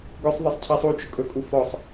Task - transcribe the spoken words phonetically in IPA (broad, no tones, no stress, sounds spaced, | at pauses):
ɡ ɵ sˤ ðˤ e sˤ cʰ ɛ sˤ u t͡ʃ ʊ kʼ ɵ kʼ u f ɔ sˤ